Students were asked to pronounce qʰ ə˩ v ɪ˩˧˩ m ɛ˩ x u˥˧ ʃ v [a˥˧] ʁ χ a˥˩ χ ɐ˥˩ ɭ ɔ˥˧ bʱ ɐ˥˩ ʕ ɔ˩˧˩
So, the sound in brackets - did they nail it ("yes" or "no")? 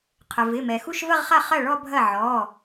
no